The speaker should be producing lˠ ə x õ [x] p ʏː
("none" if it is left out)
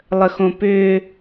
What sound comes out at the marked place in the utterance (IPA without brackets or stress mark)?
none